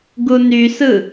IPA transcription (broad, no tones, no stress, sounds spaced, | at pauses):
ɡ u n y s ɯ